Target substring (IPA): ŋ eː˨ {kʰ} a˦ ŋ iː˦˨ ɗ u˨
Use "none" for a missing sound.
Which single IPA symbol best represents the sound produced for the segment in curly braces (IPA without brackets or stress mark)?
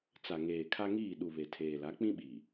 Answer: kʰ